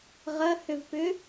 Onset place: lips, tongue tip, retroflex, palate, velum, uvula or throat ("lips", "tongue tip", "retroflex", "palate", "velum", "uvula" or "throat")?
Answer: uvula